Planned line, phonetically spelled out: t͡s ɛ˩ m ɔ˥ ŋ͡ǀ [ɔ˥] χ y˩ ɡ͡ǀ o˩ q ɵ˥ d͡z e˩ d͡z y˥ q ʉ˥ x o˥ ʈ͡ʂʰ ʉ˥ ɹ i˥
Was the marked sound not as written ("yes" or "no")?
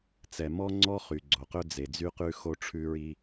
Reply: no